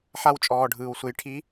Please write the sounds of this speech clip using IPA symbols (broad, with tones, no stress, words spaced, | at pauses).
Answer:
ħa˧wt͡ʃʼɔː˩ ɖʱɯː˩w sʷe˩˧j ʈʰi˧˥